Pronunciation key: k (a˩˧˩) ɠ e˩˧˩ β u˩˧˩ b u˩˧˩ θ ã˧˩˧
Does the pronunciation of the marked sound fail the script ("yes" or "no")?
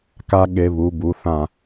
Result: yes